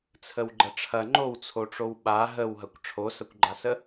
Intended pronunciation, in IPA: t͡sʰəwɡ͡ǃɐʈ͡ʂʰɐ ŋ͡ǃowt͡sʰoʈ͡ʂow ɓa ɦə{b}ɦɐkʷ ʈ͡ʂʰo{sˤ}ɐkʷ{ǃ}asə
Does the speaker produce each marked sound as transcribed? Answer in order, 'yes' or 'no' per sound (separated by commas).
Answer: no, no, no